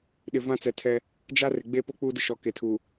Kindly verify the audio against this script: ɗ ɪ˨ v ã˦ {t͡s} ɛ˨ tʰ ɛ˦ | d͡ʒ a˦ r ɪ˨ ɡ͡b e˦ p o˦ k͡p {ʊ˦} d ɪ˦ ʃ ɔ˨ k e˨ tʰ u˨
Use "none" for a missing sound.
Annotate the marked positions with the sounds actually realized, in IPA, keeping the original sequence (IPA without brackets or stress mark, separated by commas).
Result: t͡s, u˦